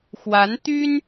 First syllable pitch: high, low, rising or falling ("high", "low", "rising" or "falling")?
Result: rising